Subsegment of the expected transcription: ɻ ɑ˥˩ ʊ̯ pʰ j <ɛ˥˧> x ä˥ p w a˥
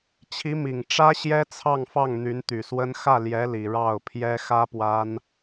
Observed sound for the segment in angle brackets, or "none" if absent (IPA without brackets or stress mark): ɛ˥